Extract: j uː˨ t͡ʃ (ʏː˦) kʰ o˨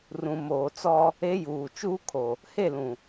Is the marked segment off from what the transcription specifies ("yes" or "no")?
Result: yes